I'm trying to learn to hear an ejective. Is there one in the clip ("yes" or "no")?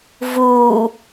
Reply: no